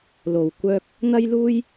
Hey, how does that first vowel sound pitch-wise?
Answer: low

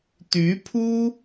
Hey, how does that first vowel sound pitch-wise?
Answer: rising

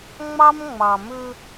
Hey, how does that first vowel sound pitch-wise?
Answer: high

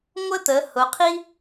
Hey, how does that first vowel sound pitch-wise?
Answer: high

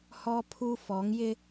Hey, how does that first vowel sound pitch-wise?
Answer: high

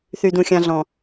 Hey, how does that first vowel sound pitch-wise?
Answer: high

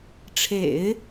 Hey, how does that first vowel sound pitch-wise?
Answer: low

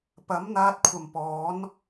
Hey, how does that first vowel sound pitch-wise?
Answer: rising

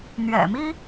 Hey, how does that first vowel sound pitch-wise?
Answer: low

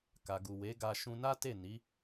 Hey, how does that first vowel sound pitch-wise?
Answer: low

